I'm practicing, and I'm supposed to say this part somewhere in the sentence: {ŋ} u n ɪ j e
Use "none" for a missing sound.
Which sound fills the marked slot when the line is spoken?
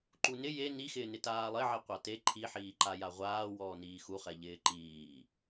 ǃ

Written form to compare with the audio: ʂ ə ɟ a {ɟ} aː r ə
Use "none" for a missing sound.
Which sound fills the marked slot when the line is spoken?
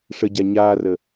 ɲ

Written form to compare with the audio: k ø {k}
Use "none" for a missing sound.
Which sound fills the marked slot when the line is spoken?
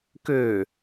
none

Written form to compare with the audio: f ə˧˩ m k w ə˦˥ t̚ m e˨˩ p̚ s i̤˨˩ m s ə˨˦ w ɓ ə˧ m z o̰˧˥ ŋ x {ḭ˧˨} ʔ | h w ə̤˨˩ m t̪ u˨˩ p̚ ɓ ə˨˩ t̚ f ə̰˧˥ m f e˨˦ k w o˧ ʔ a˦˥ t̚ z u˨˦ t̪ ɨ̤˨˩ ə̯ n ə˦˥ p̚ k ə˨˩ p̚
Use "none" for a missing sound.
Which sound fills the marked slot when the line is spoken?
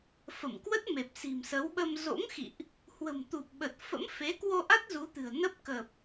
ḭ˧˨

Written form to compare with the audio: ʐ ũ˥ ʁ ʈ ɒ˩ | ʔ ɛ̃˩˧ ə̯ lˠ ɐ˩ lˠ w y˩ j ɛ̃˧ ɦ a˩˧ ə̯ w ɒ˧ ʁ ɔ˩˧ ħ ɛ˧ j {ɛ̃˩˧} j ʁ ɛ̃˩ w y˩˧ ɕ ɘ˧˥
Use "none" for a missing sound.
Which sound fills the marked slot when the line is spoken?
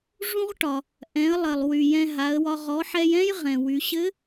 ɛ̃˥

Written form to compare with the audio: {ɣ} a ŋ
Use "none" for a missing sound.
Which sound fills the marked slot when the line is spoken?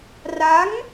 r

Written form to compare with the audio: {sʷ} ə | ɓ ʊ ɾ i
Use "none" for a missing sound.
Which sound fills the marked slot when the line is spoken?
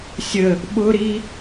sʲ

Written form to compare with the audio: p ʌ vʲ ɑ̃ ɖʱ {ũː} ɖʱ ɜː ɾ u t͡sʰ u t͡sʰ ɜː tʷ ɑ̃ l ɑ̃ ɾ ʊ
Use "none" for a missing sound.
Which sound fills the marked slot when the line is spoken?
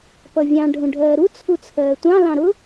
ũ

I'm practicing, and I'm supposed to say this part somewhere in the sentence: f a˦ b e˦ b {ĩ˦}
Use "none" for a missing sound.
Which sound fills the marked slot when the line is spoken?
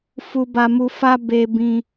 ĩ˦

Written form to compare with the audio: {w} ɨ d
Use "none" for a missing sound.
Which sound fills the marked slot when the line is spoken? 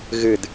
ɣ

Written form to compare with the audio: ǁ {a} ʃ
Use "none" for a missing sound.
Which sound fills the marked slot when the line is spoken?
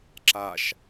a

